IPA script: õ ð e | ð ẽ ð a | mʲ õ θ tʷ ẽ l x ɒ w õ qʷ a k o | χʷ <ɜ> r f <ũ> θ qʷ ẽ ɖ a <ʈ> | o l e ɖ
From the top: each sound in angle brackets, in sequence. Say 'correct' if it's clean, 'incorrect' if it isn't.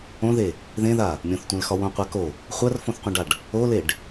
correct, incorrect, incorrect

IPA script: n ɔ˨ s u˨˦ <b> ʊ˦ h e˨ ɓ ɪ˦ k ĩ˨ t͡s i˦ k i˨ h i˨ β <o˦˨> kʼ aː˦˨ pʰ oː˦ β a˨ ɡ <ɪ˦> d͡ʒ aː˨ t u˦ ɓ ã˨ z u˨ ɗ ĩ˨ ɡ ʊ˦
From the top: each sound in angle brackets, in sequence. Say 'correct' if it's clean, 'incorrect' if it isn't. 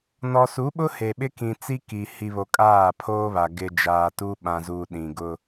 incorrect, incorrect, incorrect

